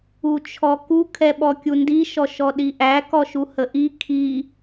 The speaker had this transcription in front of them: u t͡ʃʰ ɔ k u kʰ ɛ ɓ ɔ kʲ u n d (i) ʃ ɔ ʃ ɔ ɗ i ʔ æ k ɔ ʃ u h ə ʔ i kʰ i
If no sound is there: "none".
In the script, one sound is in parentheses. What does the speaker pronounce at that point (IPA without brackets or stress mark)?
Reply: i